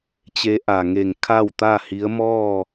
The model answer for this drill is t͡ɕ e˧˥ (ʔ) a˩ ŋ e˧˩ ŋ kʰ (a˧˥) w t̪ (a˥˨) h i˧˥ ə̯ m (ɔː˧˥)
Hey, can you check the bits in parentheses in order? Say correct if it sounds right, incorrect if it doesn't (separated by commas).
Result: correct, incorrect, correct, incorrect